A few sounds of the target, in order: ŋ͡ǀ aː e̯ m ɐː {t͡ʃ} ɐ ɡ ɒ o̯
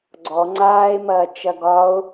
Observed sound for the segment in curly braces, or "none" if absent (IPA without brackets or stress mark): t͡ʃ